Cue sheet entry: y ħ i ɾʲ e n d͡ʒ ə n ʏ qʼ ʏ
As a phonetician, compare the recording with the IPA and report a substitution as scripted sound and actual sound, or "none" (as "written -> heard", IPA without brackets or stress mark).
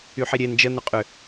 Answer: none